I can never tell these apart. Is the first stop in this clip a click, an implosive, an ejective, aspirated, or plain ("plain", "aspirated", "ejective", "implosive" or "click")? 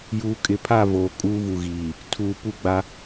ejective